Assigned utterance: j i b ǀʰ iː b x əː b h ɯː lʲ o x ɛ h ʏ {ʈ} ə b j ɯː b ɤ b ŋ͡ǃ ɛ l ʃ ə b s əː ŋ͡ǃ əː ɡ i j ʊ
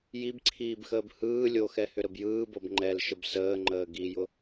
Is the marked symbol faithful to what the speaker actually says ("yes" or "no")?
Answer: no